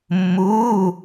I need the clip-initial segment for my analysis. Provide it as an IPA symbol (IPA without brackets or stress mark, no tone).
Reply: mː